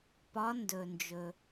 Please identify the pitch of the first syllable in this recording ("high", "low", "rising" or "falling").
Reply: rising